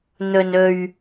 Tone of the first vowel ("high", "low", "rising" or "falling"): low